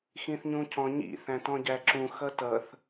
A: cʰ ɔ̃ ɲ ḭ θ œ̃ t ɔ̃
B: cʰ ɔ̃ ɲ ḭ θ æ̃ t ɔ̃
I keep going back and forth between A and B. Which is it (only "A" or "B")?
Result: B